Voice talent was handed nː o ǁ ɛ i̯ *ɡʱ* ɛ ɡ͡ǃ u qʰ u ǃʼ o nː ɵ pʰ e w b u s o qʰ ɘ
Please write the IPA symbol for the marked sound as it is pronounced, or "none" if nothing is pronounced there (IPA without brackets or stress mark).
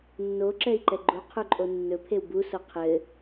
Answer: ǃ